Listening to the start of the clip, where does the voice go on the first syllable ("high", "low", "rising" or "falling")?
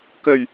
low